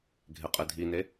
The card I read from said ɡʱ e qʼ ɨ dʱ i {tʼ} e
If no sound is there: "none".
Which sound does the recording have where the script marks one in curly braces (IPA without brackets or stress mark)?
n